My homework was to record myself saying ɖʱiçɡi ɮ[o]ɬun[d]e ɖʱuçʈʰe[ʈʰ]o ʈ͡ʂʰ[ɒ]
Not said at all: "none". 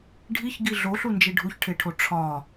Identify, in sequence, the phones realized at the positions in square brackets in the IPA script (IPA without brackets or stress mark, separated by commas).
o, d͡ʒ, ʈʰ, ɒ